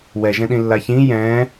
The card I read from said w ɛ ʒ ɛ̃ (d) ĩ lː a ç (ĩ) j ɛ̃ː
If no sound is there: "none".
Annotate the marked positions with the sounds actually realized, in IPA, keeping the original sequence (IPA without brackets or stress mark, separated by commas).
ɗ, ĩ